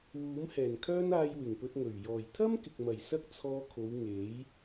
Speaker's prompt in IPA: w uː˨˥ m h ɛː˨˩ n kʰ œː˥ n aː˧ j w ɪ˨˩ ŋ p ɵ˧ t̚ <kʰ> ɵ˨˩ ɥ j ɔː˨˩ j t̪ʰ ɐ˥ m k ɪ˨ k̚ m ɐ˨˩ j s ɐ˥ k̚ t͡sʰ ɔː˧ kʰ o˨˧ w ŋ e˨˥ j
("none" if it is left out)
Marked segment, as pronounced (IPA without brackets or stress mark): ŋ